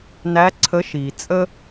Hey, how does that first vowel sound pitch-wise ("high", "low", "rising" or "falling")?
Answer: rising